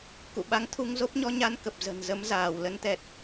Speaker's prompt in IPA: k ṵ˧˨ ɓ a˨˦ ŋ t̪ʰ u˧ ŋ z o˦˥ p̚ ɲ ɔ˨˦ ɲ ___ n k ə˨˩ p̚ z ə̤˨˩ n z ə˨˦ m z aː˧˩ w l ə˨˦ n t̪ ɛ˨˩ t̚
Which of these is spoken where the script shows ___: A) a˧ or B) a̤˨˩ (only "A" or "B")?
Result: A